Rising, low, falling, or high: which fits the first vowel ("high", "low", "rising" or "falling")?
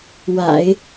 low